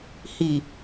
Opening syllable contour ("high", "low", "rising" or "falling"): low